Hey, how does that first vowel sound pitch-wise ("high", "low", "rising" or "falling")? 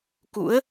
rising